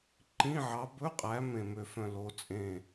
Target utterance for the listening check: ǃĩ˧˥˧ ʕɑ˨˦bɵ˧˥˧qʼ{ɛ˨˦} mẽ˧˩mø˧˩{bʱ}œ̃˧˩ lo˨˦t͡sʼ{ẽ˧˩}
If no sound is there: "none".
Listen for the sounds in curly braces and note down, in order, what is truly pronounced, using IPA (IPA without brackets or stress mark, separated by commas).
æ˨˦, f, ẽ˧˩